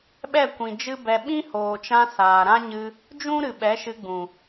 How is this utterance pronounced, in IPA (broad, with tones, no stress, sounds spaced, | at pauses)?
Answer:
ɓ ɛ˦˨ kʷ ĩ˨ d͡ʒ ɨ˦ b ɛ˧ ɓ ĩ˦ h oː˨ t͡ʃ ã˧ s aː˨ ɾ ã˦ ɲ ɨ˧ | d͡ʒ ũ˦ ɾ ɨ˨ ɓ ɛ˨˦ ʃ ɨ˧ ɡ͡b ũ˨